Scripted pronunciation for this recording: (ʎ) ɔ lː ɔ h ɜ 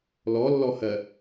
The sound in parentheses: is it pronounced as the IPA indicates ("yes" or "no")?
no